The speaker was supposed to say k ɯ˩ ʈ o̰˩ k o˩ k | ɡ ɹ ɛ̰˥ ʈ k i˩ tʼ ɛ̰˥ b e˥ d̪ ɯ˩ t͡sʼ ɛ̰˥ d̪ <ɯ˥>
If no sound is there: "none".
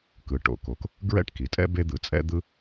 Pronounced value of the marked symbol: ɯ˥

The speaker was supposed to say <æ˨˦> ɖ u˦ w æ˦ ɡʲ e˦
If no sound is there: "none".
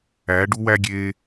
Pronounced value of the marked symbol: æ˨˦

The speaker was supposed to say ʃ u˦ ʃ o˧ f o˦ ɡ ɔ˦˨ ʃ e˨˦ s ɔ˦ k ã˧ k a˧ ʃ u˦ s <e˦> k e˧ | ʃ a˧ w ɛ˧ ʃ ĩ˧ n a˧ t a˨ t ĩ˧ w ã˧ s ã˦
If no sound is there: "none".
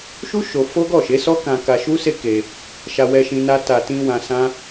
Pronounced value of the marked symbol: e˦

